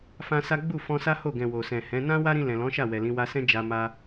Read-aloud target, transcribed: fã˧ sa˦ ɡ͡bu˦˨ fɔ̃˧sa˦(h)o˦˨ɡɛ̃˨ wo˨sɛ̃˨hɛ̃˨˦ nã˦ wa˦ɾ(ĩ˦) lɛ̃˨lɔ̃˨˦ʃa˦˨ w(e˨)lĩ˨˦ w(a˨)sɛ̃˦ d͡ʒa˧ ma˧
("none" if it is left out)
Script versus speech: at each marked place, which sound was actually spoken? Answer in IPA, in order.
h, ĩ˧, ɛ˨, a˧

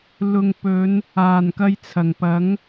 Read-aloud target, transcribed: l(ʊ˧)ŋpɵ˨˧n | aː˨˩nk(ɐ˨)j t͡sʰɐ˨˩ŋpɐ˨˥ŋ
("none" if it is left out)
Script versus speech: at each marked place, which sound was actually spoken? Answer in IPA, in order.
ʊ˨, ɐ˧

